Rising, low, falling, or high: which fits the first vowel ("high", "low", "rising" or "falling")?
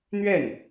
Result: falling